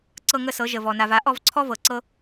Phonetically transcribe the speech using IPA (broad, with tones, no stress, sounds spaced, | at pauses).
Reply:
ǀ ɤ˥˧ ŋ ə˥˧ s ɤ˨˥ ʒ ə˨ v ɔ˨ n a˨ v a˨˥ ʔ ɔ˥˧ v ǀʰ ɔ˥ v ɤ˨ ǀ ɤ˥